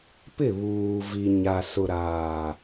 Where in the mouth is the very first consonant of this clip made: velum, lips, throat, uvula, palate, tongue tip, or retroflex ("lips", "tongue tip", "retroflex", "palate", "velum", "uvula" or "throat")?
lips